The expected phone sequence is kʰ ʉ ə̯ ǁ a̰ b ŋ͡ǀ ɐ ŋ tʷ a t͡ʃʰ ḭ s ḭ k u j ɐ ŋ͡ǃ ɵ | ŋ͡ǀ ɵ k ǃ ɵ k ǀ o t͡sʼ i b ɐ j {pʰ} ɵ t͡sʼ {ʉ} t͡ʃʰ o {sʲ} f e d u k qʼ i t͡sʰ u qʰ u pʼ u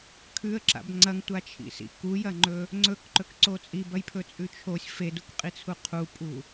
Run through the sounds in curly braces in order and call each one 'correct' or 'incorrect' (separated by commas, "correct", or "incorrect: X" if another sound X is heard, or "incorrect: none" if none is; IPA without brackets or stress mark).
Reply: correct, correct, correct